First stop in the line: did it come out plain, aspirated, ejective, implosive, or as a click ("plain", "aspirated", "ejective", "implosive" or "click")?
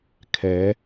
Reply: aspirated